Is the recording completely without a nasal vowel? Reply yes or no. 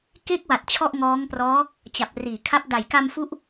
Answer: yes